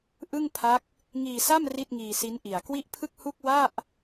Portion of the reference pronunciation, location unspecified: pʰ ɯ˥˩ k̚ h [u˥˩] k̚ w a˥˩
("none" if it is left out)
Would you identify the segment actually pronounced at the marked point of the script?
u˥˩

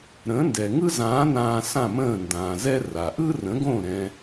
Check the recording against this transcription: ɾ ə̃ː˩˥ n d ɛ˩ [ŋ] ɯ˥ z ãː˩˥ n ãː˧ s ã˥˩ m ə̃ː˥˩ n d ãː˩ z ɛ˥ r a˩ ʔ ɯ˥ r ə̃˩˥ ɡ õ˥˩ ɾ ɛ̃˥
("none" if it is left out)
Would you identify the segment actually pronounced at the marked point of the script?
ŋ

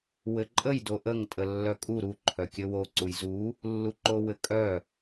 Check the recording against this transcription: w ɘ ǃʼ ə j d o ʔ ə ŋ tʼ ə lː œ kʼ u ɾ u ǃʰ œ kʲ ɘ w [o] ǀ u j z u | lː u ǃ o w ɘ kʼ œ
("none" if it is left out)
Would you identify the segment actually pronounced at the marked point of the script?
o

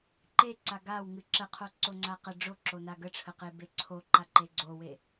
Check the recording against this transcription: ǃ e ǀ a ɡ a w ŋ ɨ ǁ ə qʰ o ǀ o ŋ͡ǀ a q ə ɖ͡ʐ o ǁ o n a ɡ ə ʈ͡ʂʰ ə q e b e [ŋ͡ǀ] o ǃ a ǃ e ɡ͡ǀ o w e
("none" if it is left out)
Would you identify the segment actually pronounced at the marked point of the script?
ǀʰ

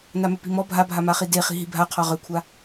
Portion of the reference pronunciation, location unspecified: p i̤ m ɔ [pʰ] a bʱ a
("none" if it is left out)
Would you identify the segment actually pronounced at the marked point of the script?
bʱ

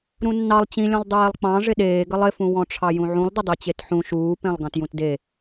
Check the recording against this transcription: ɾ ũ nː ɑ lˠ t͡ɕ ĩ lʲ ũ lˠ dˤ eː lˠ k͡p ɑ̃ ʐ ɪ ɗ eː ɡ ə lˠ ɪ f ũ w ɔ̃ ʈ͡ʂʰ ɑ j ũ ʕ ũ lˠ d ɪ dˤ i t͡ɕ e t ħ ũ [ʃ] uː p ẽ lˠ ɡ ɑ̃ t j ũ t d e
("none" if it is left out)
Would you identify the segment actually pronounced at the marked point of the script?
ʃ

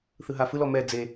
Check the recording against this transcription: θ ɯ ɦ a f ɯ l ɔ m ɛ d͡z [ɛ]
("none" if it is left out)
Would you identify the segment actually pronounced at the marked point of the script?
e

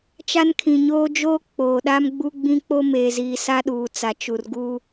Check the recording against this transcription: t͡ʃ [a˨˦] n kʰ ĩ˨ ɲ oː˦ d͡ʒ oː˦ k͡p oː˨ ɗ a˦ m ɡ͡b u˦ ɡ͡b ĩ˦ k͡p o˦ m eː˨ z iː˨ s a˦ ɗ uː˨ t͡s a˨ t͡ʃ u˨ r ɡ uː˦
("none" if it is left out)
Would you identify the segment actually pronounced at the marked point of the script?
a˦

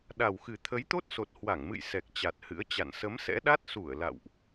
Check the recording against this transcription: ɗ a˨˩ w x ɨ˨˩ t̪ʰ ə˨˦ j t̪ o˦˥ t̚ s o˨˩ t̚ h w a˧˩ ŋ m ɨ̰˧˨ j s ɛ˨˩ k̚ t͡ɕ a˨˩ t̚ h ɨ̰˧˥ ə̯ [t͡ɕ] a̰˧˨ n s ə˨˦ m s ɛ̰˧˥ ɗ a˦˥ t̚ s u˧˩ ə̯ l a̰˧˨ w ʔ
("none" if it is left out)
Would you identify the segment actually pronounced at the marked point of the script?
t͡ɕ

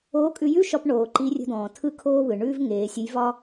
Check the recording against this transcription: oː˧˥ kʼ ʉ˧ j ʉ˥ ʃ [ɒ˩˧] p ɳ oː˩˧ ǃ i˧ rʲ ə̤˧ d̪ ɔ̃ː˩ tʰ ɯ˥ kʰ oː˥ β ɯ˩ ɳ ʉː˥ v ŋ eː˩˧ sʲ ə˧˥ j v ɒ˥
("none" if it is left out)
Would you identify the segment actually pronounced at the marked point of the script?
ɒ˧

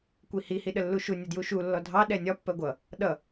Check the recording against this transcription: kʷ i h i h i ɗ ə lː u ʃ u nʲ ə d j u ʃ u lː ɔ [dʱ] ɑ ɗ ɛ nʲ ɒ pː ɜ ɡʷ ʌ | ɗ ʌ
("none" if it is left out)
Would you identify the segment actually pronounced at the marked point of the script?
dʱ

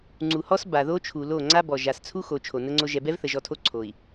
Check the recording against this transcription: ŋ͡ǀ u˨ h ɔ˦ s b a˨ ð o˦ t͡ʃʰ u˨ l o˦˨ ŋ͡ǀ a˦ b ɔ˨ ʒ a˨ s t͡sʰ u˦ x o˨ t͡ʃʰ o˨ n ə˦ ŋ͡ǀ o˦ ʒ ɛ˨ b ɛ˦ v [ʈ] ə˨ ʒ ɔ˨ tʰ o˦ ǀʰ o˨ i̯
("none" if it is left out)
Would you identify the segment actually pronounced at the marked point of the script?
θ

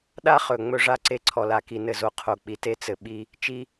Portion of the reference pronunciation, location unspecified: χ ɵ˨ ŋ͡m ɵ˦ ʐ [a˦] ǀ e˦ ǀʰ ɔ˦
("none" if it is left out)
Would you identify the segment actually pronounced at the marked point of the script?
a˦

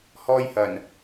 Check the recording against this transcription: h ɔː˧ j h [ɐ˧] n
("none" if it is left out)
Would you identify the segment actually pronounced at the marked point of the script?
ɐ˨˩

